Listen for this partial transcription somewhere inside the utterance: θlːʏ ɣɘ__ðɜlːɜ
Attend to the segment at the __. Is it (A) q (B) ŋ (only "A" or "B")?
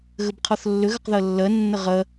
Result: A